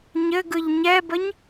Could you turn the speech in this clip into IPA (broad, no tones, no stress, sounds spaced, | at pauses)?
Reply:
ɲ ɘ ɡ ɯ ʎ ɲ ɛ b ə ɲ